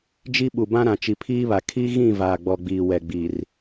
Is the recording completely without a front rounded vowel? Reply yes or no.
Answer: yes